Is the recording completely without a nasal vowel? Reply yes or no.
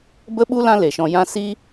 no